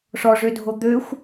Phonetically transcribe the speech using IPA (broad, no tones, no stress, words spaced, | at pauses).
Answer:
ʂɔʐødʱo d̪øxʷ